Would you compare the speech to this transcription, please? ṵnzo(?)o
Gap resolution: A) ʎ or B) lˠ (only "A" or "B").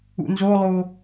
B